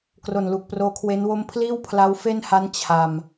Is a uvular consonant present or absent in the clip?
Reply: absent